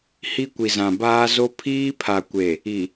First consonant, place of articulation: glottal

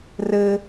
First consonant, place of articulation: alveolar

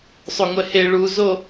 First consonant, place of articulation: alveolar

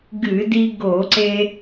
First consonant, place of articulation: velar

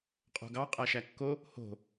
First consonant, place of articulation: uvular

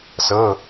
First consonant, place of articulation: alveolar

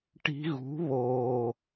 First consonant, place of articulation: retroflex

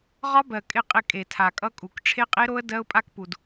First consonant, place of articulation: uvular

